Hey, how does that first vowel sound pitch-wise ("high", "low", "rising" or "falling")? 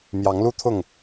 rising